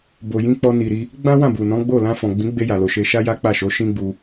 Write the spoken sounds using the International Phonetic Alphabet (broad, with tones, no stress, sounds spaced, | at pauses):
b o˨ j ĩ˧ k͡p ɔ˧ n i˨ ɾ i˧ | ɡ͡b ã˦ w ã˦˨ b u˨ n ɔ̃˨˦ ɡ͡b o˦˨ l ã˧ f ɔ̃˨ ɡ͡b ĩ˨˦ ɡ͡b e˧ j a˨ l o˨ ʃ e˧ ʃ a˦ j a˦ k͡p a˦˨ ʃ o˨˦ ʃ ĩ˦ ɡ͡b u˧